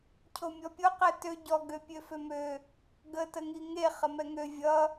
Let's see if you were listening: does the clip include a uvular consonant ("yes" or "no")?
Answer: yes